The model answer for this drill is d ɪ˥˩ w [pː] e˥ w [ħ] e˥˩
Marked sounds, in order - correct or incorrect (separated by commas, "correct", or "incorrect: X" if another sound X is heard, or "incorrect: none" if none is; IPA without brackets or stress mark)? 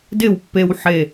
correct, correct